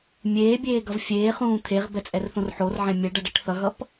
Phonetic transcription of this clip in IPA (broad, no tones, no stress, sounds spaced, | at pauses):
mʲ eː bʲ eː ɡ ʌ v fʲ eː χ ũː t̪ʰ e ʁ b ɛ t͡sʼ ɛ r θ õ r ħ o r ʕ ɛ̃ mʲ ɛ ɖ ʌ ɖ ʌ ʈ θ ʌ ɣ ʌ p